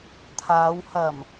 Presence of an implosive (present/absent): absent